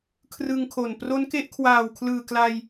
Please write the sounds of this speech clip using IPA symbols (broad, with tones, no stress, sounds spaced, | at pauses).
kʰ r ɯ˧ ŋ kʰ o˨˩ n p r o˦˥ n k e˦˥ ʔ kʰ w aː˨˩ w kʰ l ɯː˨˩ k l a˧ j